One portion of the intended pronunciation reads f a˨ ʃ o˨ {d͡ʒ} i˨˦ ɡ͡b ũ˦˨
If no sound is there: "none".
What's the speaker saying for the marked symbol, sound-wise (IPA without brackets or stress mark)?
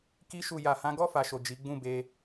d͡ʒ